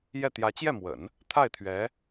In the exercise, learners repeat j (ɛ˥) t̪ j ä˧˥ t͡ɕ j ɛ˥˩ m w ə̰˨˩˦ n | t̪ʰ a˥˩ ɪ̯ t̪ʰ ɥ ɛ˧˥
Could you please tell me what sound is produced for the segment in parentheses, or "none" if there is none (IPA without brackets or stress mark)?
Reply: ɛ˥˩